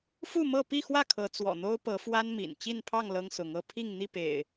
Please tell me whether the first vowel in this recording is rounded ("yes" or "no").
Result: yes